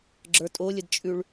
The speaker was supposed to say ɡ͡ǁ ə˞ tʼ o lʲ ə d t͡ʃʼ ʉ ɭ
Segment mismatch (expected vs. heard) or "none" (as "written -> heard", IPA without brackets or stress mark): none